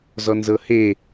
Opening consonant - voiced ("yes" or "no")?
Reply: yes